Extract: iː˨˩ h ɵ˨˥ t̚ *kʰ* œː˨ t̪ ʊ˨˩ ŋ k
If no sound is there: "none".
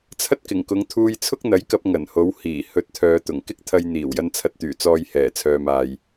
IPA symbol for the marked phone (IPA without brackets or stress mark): t̪ʰ